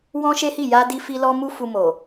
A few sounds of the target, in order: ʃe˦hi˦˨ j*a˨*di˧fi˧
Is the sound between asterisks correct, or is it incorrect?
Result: incorrect